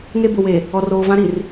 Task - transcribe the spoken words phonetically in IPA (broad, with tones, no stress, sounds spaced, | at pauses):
ŋ e˦ b ʊ˨ w e˨ | ɔ˨ r oː˨ v ã˦ ɾ i˨ r